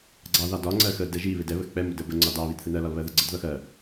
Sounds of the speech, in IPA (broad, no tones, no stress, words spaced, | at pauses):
ɡ͡ǀɑ ðɑdɒ ŋ͡ǀɜxə dɛʒi βɪdɛ βəxk͡pɛ mʊdəbə ŋ͡ǀɒdɑ βidθɪnɜ lɒlβɜðəɡ͡ǀəd ðʌxɜ